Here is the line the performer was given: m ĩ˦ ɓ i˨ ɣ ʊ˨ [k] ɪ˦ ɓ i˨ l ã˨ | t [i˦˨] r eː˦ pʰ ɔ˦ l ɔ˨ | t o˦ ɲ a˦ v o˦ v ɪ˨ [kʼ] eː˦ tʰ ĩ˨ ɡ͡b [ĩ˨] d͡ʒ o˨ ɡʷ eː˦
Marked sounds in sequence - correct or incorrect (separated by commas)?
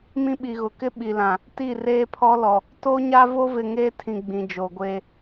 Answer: correct, correct, incorrect, correct